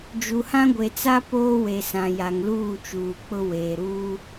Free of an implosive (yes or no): yes